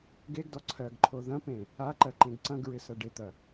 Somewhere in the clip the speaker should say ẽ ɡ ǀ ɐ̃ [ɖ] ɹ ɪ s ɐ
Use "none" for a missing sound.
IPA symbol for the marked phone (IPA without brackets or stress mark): ɡ